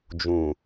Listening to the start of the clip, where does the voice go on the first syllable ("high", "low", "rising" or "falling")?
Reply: low